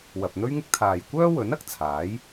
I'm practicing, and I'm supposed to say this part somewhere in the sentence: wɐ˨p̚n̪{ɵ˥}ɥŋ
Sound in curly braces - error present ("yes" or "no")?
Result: no